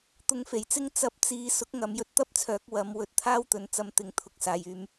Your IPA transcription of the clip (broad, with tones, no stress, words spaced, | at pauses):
t̪ʊ˧ŋfe˨˩jt͡sɪ˥ŋ t͡sɐ˨˥p̚ t͡siː˧ sʊ˨˥k̚ŋɐ˨m jɵ˧t̚t̪ɐ˥p̚t͡sʰœː˨˥k̚ wɐ˨˧m wɵ˧t̚t̪ʰaː˥wt̪ɵ˨n t͡sɐ˧mt̪ɪ˨ŋt̪ʰʊ˨k̚ saː˨jyː˧m